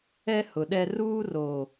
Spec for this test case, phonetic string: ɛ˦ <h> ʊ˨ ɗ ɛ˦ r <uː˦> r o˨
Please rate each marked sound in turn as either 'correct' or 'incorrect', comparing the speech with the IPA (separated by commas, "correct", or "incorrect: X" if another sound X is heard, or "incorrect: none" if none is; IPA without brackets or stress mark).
correct, correct